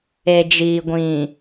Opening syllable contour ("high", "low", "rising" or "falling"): low